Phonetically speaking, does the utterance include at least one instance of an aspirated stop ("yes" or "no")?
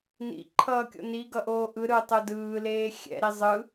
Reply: yes